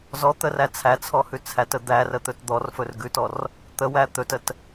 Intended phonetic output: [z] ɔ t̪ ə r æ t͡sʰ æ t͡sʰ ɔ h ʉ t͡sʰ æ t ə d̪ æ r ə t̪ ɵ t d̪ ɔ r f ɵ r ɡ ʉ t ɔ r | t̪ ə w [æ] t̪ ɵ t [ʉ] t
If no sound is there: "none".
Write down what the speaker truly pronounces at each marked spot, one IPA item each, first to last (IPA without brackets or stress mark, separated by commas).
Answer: z, æ, ə